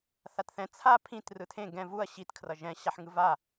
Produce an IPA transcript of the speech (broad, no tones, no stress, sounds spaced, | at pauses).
θ a t θ ɛ̃ t͡sʰ a pʰ ĩ t r ɯ tʰ ẽ ɡ ɛ̃ v u ɐ̯ ɕ i t kʰ r ʌ ʒ ɛ̃ ɕ a ħ ŋ ɯ v a